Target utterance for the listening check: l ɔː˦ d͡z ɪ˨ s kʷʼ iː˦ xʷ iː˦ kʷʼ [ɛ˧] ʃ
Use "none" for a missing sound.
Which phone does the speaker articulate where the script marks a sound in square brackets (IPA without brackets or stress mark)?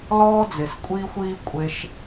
e˧